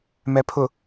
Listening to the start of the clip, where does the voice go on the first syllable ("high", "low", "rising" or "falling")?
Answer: low